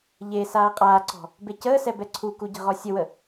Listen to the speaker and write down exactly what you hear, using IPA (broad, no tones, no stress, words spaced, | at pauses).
ʎesaː qʼaːǀɔ̤ | becəːsɛ bɛǀʰuku ɟə̤ʁɔsʲəwə